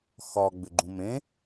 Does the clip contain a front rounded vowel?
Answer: yes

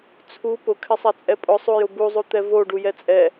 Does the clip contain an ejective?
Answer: yes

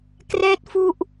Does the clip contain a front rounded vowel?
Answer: no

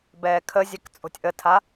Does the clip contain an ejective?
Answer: yes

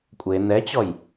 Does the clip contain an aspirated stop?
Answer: no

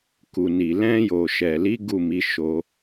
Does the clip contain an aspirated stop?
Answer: no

